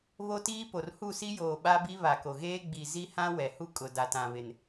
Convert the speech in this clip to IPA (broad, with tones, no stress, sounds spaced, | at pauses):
β o˦ t iː˦ p o˨ r h u˦˨ s i˦ j oː˨ ɓ a˦ b i˦ β a˨ k o˨ ɣ eː˦ ɡ͡b i˨ z i˦ h ã˦ w ɛ˨ h u˦ kʼ ʊ˨ d a˨ t ã˨ β ɪ˨ n